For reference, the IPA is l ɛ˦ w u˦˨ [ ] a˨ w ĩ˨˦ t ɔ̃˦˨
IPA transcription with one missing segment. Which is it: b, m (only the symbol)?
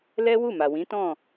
m